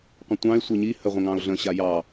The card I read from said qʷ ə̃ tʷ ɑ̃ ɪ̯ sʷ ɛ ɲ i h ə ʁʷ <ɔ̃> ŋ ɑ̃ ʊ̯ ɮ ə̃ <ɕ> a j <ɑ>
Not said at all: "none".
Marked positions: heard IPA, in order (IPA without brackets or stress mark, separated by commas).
ə̃, ɕ, ɑ